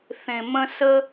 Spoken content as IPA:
θẽ˨mə̃˦ sə˦

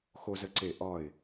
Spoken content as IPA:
xo˧zə˧ǀe˧˩ ʔɒ˧˩ɪ̯

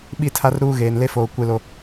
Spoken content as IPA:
ɓi˦˨tʰa˦rɾuː˦ ɣeː˨nle˦foː˨ kʷe˦ lo˦

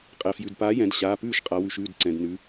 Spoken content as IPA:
qʼɛ˩fjʉ˩dpaː˨˥jɛ̃˩˧d ɕaː˩˧˩pʉː˥˩ʃqʼa˩˧wʉ˩ʃ ʉː˥˩dǀɛ̃˩dnʉ˩˧

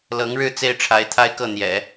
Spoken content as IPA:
lɤ˧˥ŋɻɻ̩˥˩ t͡se˥ɪ̯ʈ͡ʂʰa˧˥ɪ̯t̪ʰa˥ɪ̯kɤ˥˩ n̪jɛ̰˨˩˦

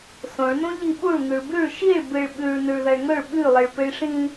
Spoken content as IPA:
sõɭnõ ʎiɓuɭ ŋʉɭbʉɭ ʃiɭ bɨɭ ɓʉɭ nʉɭðɐɭŋɵɭ ɓʉlˠɨɭ pɨɭʂĩ

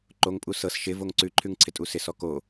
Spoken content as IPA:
ǃoŋpʼu sɤs ʃɪ voŋǀʉǃʰʉŋ ǀʰɪtʼusɪsɔ ko

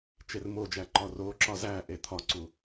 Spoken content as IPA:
t͡ʃermod͡ʒæ ǃɒroǁɒ zæʔe t̪ʰɒǀu

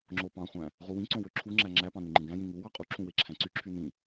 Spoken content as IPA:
ŋ͡ǁopɑ̃χʷæ̃ | ʁuwĩǀõ wøǁʰuŋ͡ǁæ ŋ͡ǁæpɑ̃ nyŋ͡ǃĩɡæ̃jĩ ŋu wɑqʼuǁʰũ weǁʰæ̃ǀyǁʰy nĩ

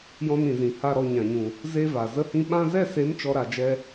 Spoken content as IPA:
jɔ̃˧nĩ˨zĩ˨ ha˦˨ɾɔ˦˨ɲã˨ɲũ˨ | ze˧ va˨ zə˧hĩ˧ ɓã˧zɛ˦˨se˨˦m t͡ʃɔ˦ɾa˧ d͡ʒɛ˧

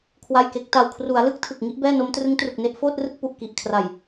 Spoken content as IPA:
kʰwa˥˩jke˦˥k̚ ta˨˩wkʰru˩˦a̯ lɯ˦˥k̚ tʰɯ˨˩k̚ŋi˦˥ʔbɛː˥˩no˦˥m trɯ˦˥ŋtru˨˩k̚ne˦˥ʔ foː˥˩t̚rɯ˥˩k̚ pu˨˩ʔ ki˨˩ʔkʰra˨˩j

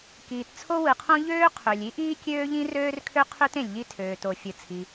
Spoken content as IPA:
kiː˩t t͡sʰo˥wɯ˩qʰõ˥ ʎøː˥ qʰø˩lʲi˥ʔiː˥ kʲøː˥ʎĩ˥røː˥rkʰø˥ qʰø˥t ẽ˩lʲʎi˥tʰøː˩ to˩ fʲɯ˩t͡sʰi˩

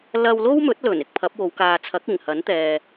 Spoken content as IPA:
lɐ˧wlo˥wmɵ˨˥t̚lɵ˨˩n ɪ˨k̚pʰɐ˨˥p̚wo˨˧w kaː˨t͡sʰɐ˨˥k̚ ɪ˨˩ŋhɐ˨˥n t̪ɛː˨

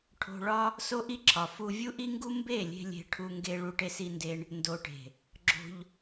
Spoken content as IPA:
ʈʰo̤˧ɭɒ˦ | so˦ʔi˦ǁʰɒ˨ fu˧ vʲu˦ʔi˦ŋɡu˦ mbe˦˨lʲe̤˧ lʲe̤˧ʈʰu˧ŋɡe˧ ɭu˧ʈe˧si˧nde˧ɳ | ndo˨ʈe̤˨ | ɡ͡ǁo̤˧ʎ

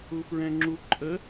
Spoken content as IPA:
ufɹɛ̃ŋ͡ǁu ǃʼə

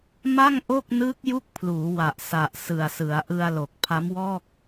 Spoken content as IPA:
ma˥˩ŋʔo˥˩k̚ nɯː˦˥k̚ju˦˥k̚pʰluː˩˦wa˨˩ʔ sa˨˩ʔsɯ˨˩a̯sɯ˩˦a̯ ʔɯ˧a̯lo˨˩k̚ pʰa˦˥mwɔː˥˩k̚

